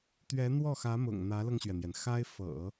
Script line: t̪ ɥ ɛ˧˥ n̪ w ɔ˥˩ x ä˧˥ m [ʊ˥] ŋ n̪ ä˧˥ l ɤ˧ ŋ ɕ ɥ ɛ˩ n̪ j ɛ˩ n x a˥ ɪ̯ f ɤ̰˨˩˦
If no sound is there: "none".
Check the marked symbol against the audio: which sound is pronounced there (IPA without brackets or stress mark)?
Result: ʊ̰˨˩